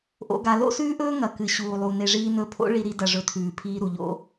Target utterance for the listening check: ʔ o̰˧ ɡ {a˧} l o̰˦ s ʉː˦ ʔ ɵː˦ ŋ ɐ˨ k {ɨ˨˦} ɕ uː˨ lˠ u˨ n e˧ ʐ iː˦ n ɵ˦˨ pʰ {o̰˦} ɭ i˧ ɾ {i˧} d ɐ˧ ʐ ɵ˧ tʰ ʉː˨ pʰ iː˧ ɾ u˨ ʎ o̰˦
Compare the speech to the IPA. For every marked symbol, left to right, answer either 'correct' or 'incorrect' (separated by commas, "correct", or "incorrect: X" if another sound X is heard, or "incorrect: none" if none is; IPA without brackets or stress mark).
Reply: correct, incorrect: ɨ˨, correct, correct